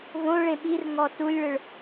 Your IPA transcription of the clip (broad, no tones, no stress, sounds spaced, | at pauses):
v õ ɭ ẽ ɓ i r ŋ ɔ t u lʲ ɭ ɯ ɭ